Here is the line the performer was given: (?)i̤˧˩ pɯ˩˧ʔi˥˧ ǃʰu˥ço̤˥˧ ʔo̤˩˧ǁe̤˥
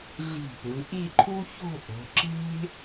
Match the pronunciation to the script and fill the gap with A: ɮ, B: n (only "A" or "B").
A